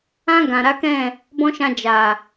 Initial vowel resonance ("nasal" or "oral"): nasal